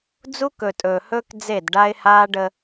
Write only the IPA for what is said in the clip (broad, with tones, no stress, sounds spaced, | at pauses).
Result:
d͡z u˦ k ɵ˨ tʼ ɵː˨ h ɵː˦ k d͡z e˦˨ d ɖ a˦ ɪ̯ h aː˦ ɖ ə˦